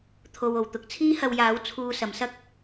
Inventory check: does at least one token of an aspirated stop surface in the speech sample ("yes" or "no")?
yes